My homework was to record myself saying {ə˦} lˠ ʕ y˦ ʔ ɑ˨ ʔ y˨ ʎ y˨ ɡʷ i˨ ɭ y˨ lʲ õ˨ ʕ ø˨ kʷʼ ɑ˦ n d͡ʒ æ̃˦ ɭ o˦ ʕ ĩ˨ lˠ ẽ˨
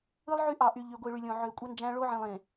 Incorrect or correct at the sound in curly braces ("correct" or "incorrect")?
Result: incorrect